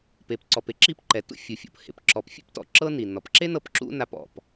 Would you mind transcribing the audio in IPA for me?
p e˩ p ǀ ɔ˩ p e˥ ǁ i˥ p ǃ ɛ˩ t ṵ˥ fʲ u˩ fʲ o̰˩ p h ḛ˩ p ǁ ɔ˩ p fʲ ḛ˥ p t ɔ̰˩ ǁ ɤ˥ n i˩ n ɔ˩ p ǁ e˥ n ɤ˧ p ǁ ṵ˥ n a˧ p ɔ̰˩ p

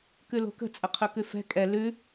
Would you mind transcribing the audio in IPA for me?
k ʉ l o̤ k ə̤ t͡sʼ ə qʰ ɵ k ʉ f ɛ̤ kʼ ɛ l ʉ

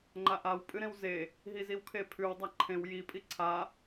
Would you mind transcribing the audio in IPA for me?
ŋ͡ǃ a ʔ a w pʼ ɨ ɾ ẽ w z e | ɦ i z i w kʰ e pʰ ʉ w dˤ a ǃʰ ẽ w j i pʼ i ǀʰ a

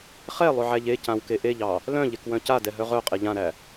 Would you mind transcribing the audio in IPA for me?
χ ɛ lˠ ʏ ʕ æ ʎ e c ã w k e ʔ e ʎ ɑ | l œ̃ ʎ e k w œ̃ c a d ɛ ɦ œ ʁ œ qʼ e ʎ ã ɾ æ

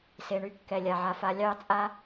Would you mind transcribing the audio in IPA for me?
s e˨ ɳ y˦ kː ɛ˨ lʲ a˨ ʕ a˨ f a˨˦ lʲ ɑ˦˨ t͡sʼ a˦

